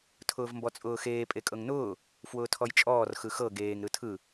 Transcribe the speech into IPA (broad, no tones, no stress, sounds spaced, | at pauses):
tʰ ʊː v m b ɔ t͡sʼ ʊː x eː pʼ e kʼ ɤ ŋ n ʊː | f w ʊː tʰ ɔ j t͡ʃʼ ɔː r x ɯ x ɤ ɡ eː ŋ ɾ ɯ tʰ ɯ